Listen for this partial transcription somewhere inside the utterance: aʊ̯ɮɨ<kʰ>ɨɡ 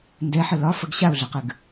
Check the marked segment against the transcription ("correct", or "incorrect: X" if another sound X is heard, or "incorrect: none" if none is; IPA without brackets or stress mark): incorrect: q